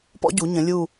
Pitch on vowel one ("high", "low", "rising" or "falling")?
high